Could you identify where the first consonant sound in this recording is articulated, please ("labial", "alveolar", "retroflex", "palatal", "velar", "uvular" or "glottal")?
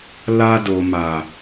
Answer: alveolar